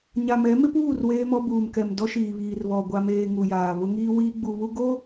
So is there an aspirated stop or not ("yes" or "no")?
no